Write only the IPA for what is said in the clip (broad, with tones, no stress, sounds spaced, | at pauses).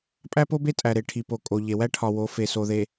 pʼ æ˦ p o˦ b e˦ tʼ æ˨ ɾ e˨ ʈʰ i˨ p o˨ kʼ o˨ ʎ e˨ w æ˦ ʈʰ ɒ˨ w o˨˦ f e˨ s o˨ ð e˨